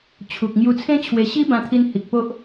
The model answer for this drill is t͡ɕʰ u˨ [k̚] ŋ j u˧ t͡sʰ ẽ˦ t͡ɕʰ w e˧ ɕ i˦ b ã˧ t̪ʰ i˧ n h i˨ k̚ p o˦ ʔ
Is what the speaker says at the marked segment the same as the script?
yes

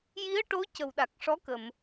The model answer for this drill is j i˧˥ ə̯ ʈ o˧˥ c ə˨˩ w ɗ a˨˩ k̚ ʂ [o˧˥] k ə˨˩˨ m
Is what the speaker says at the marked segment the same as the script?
no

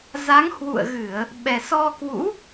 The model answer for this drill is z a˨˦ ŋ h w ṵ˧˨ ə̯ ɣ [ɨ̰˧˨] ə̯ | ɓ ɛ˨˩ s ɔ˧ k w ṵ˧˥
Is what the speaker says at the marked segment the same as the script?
no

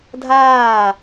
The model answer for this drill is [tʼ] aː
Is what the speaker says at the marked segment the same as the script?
no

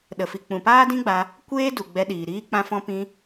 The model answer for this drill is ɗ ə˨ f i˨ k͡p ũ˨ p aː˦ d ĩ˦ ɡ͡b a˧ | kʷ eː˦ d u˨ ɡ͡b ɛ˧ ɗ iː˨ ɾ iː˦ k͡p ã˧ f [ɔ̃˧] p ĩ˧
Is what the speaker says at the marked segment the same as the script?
yes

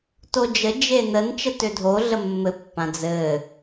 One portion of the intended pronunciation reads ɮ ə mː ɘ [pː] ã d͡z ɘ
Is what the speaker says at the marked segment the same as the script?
yes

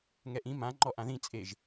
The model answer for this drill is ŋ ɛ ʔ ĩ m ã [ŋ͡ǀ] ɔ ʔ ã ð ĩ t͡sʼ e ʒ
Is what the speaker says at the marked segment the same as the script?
no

